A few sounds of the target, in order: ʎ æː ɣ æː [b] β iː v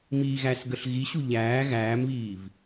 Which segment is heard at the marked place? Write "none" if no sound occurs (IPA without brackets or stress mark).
m